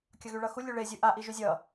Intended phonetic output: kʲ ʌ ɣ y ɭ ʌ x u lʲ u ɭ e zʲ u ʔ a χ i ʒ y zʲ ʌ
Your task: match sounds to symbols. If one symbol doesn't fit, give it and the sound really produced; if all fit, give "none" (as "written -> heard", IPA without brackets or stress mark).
χ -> ʔ